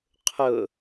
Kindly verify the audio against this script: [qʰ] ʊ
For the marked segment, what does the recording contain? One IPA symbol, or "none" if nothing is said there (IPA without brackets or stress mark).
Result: qʰ